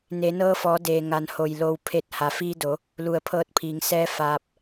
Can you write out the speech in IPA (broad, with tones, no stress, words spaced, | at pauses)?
ne˩˧ nɤː˧fɔː˩˧ deː˩ŋa˩˧n ho˧˩jlo˧wpʰe˥˨t̚ ha˩fiː˧do˩˧ | lu˧˩ə̯pʰɤː˧t̚pʰiː˩˧ŋ sɛː˧˥ faː˧p̚